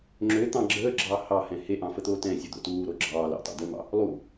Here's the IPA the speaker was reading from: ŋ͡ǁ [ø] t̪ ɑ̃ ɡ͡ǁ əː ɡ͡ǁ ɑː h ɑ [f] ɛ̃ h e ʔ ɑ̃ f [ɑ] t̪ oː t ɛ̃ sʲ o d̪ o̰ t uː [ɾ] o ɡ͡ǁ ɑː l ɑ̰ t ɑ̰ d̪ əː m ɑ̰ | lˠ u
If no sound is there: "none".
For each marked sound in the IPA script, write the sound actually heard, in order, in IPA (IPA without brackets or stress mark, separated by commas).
ø, h, ə, ɾ